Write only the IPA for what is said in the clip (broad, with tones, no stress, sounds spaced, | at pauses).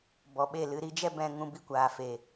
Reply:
b ɔ˨ ɓ e˦˨ l ɨ˧ ɾ i˨˦ d͡ʒ ɛ˦ b ɛ̃˧ ŋ ũ˧ b i˦ kʷ aː˨ f e˨